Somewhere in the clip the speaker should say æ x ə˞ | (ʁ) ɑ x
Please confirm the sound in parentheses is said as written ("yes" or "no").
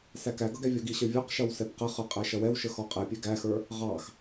yes